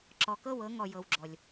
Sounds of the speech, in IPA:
ǁɔ˨kɤ˦˨wɤ˨˦ ŋɔ˨jɤ˨wɡ͡ǁɔ˨lʲ

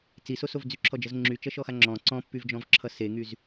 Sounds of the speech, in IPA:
t͡sisosov d͡zyǁʰɔd͡ʒʌz ŋ͡ǁyt͡ʃʌʃɔxa ŋ͡ǁɔ̃ ǀɔ̃pːyvd͡ʒɔ̃vǁʰʌ seŋyz

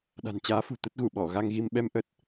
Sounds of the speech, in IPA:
ɗa̤˨˩nt͡ɕaː˨˦fṳ˨˩ t̪ə˦˥t̚ɣu˧˩ɓɔ˧˩ ɣa˧ŋɣi˧m ɓɛ˧mʔə˦˥t̚

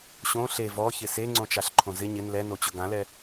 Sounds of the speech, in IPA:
ɕõ ɬe vɔçɪ seŋ͡ǀõt͡ʃaɬǃʰõ zɪ ɲɪn lɛnot͡ɕʊ ɡãlɛ

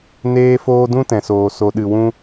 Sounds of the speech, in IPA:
neː˦foː˦ dũ˦tɛ̃˨soː˨ so˧ ɗɨ˧wũ˦

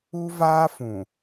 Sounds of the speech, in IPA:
u˦vaː˦ fũ˨

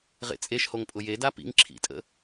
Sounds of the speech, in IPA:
ʁḛt͡sʼeʃhoŋ pʼʊjeda pḭŋ ǁʰḭtʼə̰

